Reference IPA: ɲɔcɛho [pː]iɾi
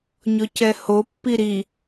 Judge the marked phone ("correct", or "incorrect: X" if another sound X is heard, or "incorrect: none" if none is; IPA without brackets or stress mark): correct